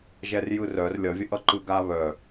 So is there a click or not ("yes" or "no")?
yes